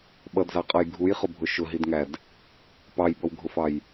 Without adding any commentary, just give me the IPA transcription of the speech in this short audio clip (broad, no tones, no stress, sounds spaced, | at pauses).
ɓ ʌ d z ɑ qʼ ʌ j ɡʱ u j χ ʊ bʱ ʊ ʃ ʊ ɦ i d ŋ æ d | p ɑ j b ʌ w ɡʱ ʊ f ɑ j